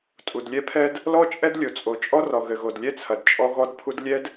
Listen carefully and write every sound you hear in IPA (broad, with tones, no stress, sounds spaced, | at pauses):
tʼ u˨ d lʲ ɛ˦ pʰ ɛ˦ d | l ɔ˦ t͡ʃʼ ɛ˦ d lʲ o˨ t͡sʼ o˨ t͡ʃʼ ɔ˦ r ɔ˨ ɣ ɘ˨ ɣ o˨ d lʲ ɛ˦ t͡sʰ ɐ˨ d t͡ʃʼ ɔ˦ ɣ ɔ˦ d pʰ u˦ d lʲ ɛ˦ d